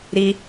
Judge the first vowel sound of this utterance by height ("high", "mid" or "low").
high